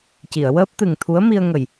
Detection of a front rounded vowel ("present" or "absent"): absent